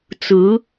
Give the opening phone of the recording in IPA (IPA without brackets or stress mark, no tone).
t͡s